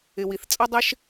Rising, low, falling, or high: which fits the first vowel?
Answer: low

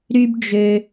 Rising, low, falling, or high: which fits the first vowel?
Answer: high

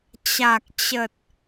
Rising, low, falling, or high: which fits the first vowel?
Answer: low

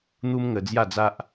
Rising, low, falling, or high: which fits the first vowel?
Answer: high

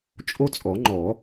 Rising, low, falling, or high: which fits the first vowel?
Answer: high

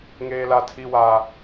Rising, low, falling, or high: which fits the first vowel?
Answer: high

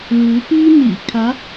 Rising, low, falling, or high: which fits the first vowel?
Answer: rising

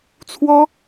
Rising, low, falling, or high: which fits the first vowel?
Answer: high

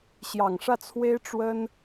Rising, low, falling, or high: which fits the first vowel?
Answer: low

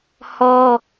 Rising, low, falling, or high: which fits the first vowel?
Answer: high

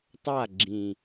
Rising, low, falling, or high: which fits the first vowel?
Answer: falling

